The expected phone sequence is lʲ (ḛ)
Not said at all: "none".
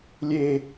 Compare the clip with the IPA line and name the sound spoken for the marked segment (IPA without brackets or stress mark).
e